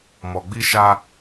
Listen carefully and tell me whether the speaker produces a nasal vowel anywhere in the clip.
no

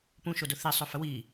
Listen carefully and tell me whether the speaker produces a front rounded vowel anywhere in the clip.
yes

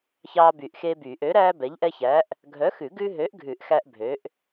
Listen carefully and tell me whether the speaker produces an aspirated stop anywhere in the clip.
no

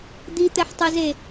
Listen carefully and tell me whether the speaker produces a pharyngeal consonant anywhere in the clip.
yes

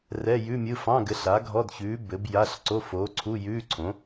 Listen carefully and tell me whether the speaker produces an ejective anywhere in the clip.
no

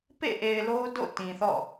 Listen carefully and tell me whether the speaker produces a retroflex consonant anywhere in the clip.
no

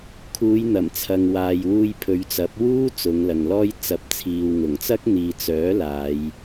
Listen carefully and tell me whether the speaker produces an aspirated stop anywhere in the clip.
yes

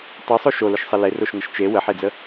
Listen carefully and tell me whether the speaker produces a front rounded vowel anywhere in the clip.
no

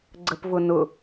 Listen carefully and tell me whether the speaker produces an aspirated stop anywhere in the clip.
no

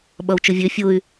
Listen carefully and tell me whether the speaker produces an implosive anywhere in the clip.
yes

